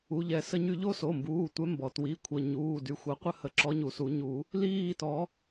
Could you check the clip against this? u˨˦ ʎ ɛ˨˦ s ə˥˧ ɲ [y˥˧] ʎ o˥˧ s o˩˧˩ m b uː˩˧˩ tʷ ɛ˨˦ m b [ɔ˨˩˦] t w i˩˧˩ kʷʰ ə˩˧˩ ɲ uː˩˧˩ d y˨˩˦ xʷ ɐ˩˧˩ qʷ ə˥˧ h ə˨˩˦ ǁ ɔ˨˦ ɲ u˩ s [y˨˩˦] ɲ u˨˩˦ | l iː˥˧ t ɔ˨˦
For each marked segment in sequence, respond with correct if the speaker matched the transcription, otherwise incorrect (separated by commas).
correct, incorrect, incorrect